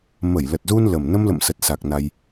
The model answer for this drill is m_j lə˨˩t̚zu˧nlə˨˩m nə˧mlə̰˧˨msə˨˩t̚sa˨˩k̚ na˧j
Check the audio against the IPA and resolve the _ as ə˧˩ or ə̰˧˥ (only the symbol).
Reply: ə˧˩